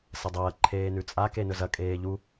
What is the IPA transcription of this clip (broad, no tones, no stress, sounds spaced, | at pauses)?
s ɐ dˤ ɐː ǃʰ eː n ʉ t͡sʼ a k e n ɵ z ɐ kʼ eː ʎ u